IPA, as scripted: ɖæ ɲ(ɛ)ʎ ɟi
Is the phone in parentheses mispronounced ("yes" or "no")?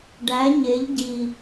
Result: yes